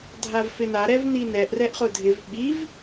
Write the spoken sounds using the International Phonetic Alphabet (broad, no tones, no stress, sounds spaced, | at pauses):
dʱ a v f ɪ n a ɾ ɛ v n i n ɛ ʔ r ɛ ʔ χ ʊ dʱ ɪ v ɓ i v